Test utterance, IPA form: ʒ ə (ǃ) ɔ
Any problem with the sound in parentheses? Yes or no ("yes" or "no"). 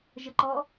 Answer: no